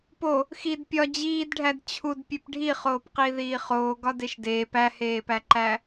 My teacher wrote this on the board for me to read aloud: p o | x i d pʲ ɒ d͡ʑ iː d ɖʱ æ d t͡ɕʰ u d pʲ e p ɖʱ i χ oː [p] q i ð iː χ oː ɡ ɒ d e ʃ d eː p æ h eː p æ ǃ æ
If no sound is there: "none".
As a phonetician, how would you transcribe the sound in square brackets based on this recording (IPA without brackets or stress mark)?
p